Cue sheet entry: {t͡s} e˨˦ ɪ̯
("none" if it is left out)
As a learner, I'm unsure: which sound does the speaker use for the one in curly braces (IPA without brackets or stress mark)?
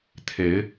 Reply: t̪ʰ